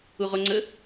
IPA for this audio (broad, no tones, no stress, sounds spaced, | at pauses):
u ʁ o ŋ͡ǀ ə